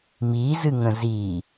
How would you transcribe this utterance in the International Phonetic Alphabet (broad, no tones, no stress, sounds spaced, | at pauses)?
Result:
m i z ɨ ŋ ə̃ z i